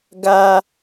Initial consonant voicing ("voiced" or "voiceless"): voiced